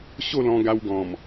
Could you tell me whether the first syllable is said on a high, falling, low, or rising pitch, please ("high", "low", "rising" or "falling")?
falling